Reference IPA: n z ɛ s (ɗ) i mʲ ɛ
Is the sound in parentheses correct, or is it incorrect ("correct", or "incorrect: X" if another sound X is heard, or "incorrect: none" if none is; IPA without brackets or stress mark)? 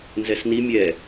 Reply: incorrect: n